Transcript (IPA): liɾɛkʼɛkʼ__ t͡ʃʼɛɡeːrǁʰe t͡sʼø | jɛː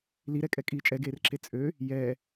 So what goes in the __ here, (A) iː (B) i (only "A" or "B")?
A